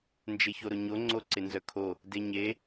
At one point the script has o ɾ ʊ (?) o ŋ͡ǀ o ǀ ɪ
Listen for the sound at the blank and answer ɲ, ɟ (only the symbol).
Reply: ɲ